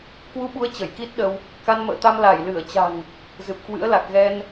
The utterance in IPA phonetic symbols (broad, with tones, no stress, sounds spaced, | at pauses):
k w u˧ ɓ u˨˦ ə̯ t͡ɕ ə˧˩ j k i˦˥ t̚ ɗ ə˧ w | k a˧ n m ə̰ː˧˨ t̪ a˧ m l a˧˩ j l ɨ˧˩ ə̯ t͡ɕ a̤˨˩ ŋ | z ɨ˨˩ p̚ k w ɨ̰˧˥ ə̯ l a˨˩ k̚ ɣ ɛ˧ n